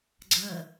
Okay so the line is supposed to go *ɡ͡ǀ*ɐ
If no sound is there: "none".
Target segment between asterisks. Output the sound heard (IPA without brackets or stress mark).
ɡ͡ǀ